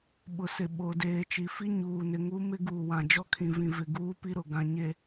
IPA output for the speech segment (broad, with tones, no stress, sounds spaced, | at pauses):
ɓ ʊ˨ s ɪ˨ ɓ o˨ d eː˨ t͡ʃ i˨ f i˦ ɲ uː˨ n ɪ˨ ŋ u˦ m ɪ˦ ɡ uː˨ w ã˨ d͡ʒ ɔ˦ kʰ ĩ˨ v ĩ˨ v ɪ˨ ɡ uː˦ p i˦ ɾ ʊ˨ ɡ ã˨ ɲ e˨